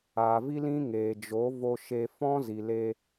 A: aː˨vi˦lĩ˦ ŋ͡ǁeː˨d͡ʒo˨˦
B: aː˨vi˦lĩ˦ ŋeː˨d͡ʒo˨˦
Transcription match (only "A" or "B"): B